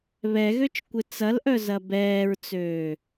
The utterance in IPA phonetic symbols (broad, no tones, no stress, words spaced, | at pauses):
βɛɣøt͡ʃ kʷɪt͡sɐlʔœ zɐbɛːɹt͡søː